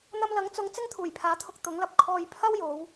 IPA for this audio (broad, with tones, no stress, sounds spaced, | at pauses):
n̪ ɐ˧ m l ɐ˨˥ ŋ t͡s ʊ˨˧ ŋ t͡s ɪ˥ ŋ t̪ʰ uː˨˩ j pʰ aː˨˥ t̪ʰ ʊ˧ k̚ t̪ ʊ˨˥ ŋ l ɐ˧ p̚ kʰ ɔː˧ j pʰ ɐ˥ w j o˨˧ w